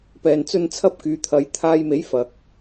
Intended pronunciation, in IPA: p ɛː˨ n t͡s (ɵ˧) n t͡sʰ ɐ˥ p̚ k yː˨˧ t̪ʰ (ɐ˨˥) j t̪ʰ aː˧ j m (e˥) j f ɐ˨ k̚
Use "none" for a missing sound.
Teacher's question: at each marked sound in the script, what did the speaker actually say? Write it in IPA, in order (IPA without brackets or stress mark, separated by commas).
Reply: ɵ˧, ɐ˨˧, e˨˥